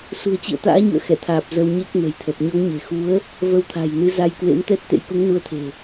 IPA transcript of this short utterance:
s ṳ˨˩ ə̯ t͡ɕ ḭ˧˨ ə̯ t̪ a̰ː˧˥ ɲ ṵ˧˨ ə̯ x ɛ˧˩ t̪ʰ aː˨˩ p̚ z ə˧ w ɲ e˦˥ k̚ n ə̤˨˩ j t̪ʰ ə˨˩ p̚ ɲ ɔ˨˦ ŋ ɲ e̤˨˩ x u˨˦ ə̯ | v ə˧ w t̪ʰ a̤˨˩ j n ɨ˨˦ z a˧ j k w ḛ˧˥ m t̪ ɛ˦˥ t̚ t̪ ḛ˧˥ j k u˨˦ ŋ n u˧ ə̯ t̪ʰ e̤˨˩

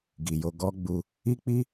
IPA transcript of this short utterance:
ɡ i˨ j o˧ ɡ ɔ˦ ɡ͡b u˧ | i˦ k͡p i˦

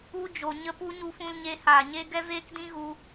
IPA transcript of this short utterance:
u˧ d͡ʒ o˨ ɲ ə˧ p u˧ ɲ u˧ f ũ˧ l ɲ e˧ h aː˨ ɲ e˧ ɡ ɛ˦ v eː˦ k d ĩ˦ ɣ u˧

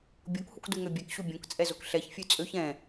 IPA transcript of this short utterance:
bʲ o k h u k d u ŋ ø bʲ ɛ k ɕ u bʲ õ k t͡sʼ ɛ z o k ɬ ɛ ç fʲ ʉ t͡sʼ ø ç ɛ̃

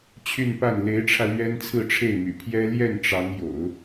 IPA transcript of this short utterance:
t͡ɕʰ y˥˧ n p a˥˩ n l e˧˥ ɪ̯ ʈ͡ʂʰ ä˧ l ɥ ɛ˥ n t͡sʰ ɹ̩˥˧ ʈ͡ʂʰ e˥˩ ɪ̯ m y̰˨˩ pʰ j ɛ˥ l j ɛ˥˩ n ʈ͡ʂ ɑ˧˥ ŋ j o̰˨˩˦ ʊ̯

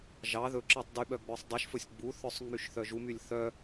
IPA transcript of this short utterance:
ʒ ɑ ð ɵ ǁ ɑ tˤ d y ɓ œ ɡ͡b œ sˤ dˤ y ʃ f ɵ sʲ ɡ͡b u θ œ sˤ ŋ͡m y ʃ θ œ ʒ u m y lʲ θ œ

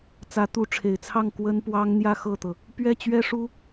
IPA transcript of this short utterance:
t͡s ä˧˥ t̪ u˧˥ ʈ͡ʂʰ e˨˩ ɪ̯ t͡sʰ ɑ˥˩ ŋ k w ə˥ n p w ɑ˥ ŋ n̪ j ä˥˧ x ɤ˥˩ t̪ ɤ˩ | p ɥ ɛ˥˩ t͡ɕ ɥ ɛ˥ ʂ u˥

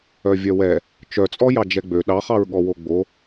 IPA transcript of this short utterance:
œ vʲ œ w ɛ | t͡ʃ œ t͡sʼ ɔ j ɑ d͡ʒ ɛ ɡ͡b ø ɗ ɑ χ ɑ ɹ ɠ ɔ w o ɡ͡b o

